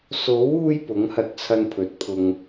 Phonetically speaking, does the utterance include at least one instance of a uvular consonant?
no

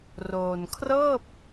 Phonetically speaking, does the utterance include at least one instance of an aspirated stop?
yes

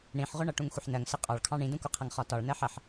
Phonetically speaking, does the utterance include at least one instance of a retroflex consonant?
yes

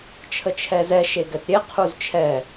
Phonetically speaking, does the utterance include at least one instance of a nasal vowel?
no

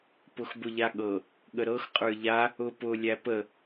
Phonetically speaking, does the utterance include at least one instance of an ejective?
yes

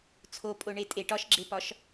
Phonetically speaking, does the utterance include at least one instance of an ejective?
yes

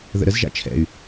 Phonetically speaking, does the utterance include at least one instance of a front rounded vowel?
yes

